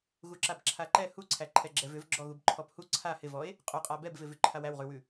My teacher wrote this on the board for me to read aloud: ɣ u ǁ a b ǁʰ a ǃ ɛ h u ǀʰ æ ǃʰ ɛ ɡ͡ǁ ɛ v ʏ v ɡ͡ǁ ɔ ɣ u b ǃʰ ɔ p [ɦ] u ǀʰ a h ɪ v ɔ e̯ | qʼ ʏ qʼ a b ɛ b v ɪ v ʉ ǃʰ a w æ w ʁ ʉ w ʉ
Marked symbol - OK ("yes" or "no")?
no